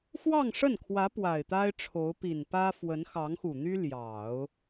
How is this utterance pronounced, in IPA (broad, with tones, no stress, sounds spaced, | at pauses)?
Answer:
x w ɑ˥˧ ŋ ʂ ə˥˩ n kʰ w ä˧˥ p w a˨˩ ɪ̯ t̪ a˥ ɪ̯ ʈ͡ʂʰ o˧˥ ʊ̯ p i˨˩ n p ä˥ f w ə˧˥ n x ɑ˧˥ ŋ x u˨˩ n̪ y˥ l j ɑ˨˩˦ ʊ̯